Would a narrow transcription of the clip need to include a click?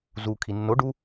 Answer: no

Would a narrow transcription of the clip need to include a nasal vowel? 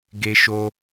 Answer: no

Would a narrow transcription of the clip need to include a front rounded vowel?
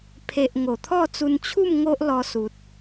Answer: no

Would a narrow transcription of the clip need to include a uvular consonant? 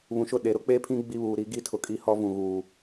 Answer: no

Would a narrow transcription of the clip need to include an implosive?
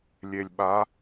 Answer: yes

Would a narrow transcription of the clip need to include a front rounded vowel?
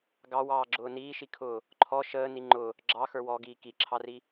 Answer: no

